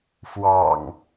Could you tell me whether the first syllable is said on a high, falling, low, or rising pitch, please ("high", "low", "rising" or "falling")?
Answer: low